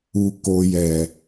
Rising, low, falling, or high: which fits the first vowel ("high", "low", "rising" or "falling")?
low